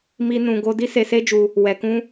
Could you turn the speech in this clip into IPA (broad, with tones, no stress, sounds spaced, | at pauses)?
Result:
m i˦ n ũ˧ ɡ o˦ d i˦ s e˧ s e˦ d͡ʒ u˧ | w ɛ˧ k ũ˦